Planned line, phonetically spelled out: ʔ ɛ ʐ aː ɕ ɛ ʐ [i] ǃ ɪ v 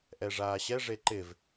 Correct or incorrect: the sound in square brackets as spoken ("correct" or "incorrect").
incorrect